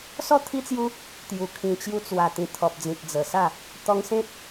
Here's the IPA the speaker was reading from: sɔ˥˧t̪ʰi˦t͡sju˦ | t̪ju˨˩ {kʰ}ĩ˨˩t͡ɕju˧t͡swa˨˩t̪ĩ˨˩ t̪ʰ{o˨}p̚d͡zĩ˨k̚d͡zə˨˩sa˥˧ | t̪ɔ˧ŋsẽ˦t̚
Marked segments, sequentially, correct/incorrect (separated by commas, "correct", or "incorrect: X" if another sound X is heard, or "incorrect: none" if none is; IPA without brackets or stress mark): correct, incorrect: ɔ˨